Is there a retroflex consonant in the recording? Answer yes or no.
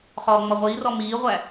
no